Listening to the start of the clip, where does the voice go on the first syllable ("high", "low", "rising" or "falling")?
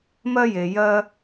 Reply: high